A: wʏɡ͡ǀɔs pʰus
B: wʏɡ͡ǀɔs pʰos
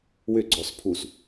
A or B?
A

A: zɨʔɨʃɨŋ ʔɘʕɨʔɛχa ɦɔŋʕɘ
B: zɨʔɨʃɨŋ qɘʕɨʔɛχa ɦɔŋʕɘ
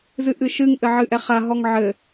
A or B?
A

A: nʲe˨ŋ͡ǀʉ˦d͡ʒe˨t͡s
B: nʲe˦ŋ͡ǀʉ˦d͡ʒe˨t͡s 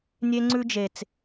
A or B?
B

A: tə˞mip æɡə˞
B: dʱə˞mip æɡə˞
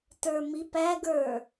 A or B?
A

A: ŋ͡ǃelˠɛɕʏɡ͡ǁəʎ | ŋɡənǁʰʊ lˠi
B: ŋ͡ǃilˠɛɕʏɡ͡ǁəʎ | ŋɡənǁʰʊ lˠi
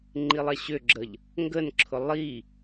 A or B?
B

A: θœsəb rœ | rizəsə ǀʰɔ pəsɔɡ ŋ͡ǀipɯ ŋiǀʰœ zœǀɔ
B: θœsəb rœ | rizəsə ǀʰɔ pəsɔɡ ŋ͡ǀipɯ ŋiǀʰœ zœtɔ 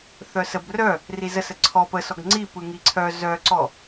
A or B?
A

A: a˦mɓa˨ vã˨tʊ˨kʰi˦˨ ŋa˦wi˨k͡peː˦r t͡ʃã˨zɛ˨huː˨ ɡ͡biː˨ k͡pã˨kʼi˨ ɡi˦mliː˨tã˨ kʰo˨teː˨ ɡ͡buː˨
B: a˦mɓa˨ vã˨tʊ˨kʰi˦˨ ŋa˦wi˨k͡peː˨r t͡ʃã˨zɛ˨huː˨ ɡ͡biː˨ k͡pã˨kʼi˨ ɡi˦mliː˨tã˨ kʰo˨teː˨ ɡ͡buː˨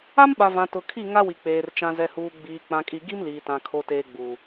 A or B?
B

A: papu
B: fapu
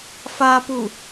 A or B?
B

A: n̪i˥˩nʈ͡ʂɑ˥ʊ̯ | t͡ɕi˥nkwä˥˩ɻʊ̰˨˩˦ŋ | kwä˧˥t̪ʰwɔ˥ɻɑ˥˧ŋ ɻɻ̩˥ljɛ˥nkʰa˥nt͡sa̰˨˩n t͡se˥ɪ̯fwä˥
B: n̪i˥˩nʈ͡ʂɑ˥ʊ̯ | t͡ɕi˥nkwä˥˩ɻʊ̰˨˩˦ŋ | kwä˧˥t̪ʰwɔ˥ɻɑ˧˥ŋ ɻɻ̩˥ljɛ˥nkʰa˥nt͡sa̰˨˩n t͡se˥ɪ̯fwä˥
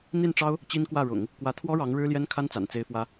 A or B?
B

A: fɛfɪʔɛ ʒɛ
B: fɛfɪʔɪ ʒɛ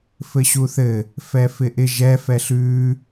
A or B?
B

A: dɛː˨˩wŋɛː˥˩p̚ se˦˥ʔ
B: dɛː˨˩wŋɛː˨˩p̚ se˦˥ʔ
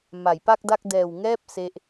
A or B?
A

